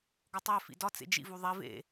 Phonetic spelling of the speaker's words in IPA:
ɡ ɒ tˤ æ f ḭ d ɒ t͡s ḛ d͡ʒ ḭ v u ðˤ i v ḛ

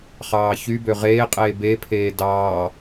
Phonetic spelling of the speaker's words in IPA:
χ ɑː ç y b ø ʁ eː qʼ eː b e pʰ eː d ɑː

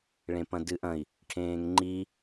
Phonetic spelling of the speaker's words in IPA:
ɭ ẽ p ɐ̃ d ɨ ʔ ɐ̃ i̯ | ʈʰ ẽː ŋ ŋ͡ǃ i

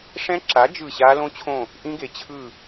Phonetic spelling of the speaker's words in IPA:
ʂ ɛ̃˦˥ ǁ a˨˥ d͡ʒ ɯ˦˨ ɕ a˦˥ l õ˦˥ t͡ɕʰ õ˦˨ | ʔ ĩ˦˥ ɡ e˨ t͡ɕʰ ɯ˦˨

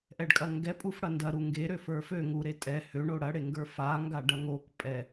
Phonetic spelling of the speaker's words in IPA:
ʔ ɛ ɖ kʼ ɐ ŋ ɡ ɛ pʼ u f ɽ ɐ n d ɐ ɾ u ŋ ɡ e ɾ ø f ə˞ f ø ŋ u ɾ e tʼ ɛ h ø ɳ o ɽ ɐ ɽ e ŋ ɡ ə˞ f a ŋ ɡ a ɖ ɐ ŋ o k pʼ ɛ

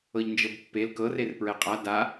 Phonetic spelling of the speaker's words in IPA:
ɤ ʎ n d͡ʒ ɤ b pː e l k ɤ r e r p ɹ ɛ qʼ a d a

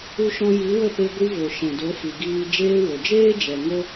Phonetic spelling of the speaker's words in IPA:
u˧ ʃ ɔ̃˧ j i˨˦ w ə˦˨ p e˧ ɡʷ i˧ v o˨ ʃ ɛ̃˨ d o˨˦ f i˨ ɡ iː˧ d͡ʒ eː˧ w o˨ d͡ʒ eː˦ d͡ʒ ɛ˨ ŋ o˦

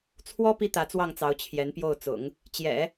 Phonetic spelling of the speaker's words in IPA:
t͡sʰ w ɔ˥ p i˥ t̪ ä˧˥ t͡s w ɑ˥˩ ŋ t͡s ɑ˧˥ ʊ̯ t͡ɕʰ j ɛ˧˥ n p j o˥˩ ʊ̯ t͡s ʊ̰˨˩˦ ŋ | t͡ɕ j ɛ̰˨˩˦

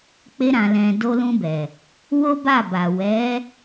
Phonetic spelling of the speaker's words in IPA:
k͡p e˧ ɾ ã˨ l ɛ̃˨ d o˧ l ũ˧ b ɛ˨ | w o˦ b a˦˨ b a˨ w ɛ˨˦

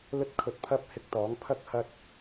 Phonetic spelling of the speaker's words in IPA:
l ɵ˥ t̚ kʰ ɵ˧ t̚ pʰ ɐ˥ p̚ h ɪ˧ k̚ t̪ ɔː˨˥ ŋ pʰ ɐ˥ k̚ h ɐ˧ t̚

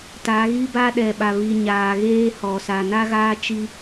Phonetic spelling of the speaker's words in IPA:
t a˨˦ ɣ i˦ b a˦ ɗ ɛ˨ ɓ a˨ β i˨ ɲ aː˨ ɣ eː˦ h ɔ˨ s a˨ n a˦ ɣ aː˦ t͡ʃ i˦

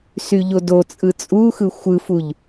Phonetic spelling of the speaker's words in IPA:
s y ʎ o d o t͡sʼ ɯ t͡sʼ u x ɯ xʷ ɯ f u ʎ

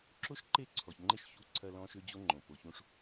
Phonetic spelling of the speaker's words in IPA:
ǁ o˦ ʃ ǃ e˦˨ ǀʰ ɔ˨ ç ŋ͡ǃ e˦ ʃ ç u˦ ǀʰ ɐ˦ l ɔ̃˦ ʃ ø˦ d͡ʑ o˦ ŋ͡ǃ õ˨ p o˨ ç ũ˦ ʂ

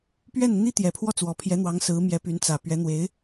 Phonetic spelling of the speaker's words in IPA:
p ɥ ɛ˥˩ n n̪ i˥ t̪ j ɛ˨˩ pʰ w ɔ˥˩ t͡s w ɔ˨˩ pʰ j ɛ˧˥ n̪ w ɑ˧˥ ŋ s ɹ̩˧˥ m j ɛ˧˥ p y˧˥ n t͡s ä˨˩ p ɥ ɛ˧˥ n̪ w e˧˥ ɪ̯

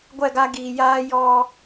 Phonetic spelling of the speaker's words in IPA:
ɡʷ ɛ˦˨ ɡ a˦ ɡ iː˨ j aː˦ j ɔ˦

